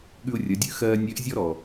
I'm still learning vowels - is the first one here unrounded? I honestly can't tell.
no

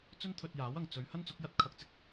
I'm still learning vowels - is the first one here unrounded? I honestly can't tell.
no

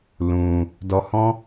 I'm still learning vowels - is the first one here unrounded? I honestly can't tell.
no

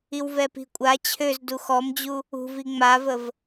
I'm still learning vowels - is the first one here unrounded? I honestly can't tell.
yes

